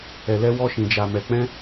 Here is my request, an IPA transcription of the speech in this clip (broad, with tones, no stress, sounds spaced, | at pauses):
ɛ˨ l ɛ˧ w ɔ˧ ʃ ĩ˨ d͡ʒ a˨ m ɛ˨ k͡p ɛ̃˧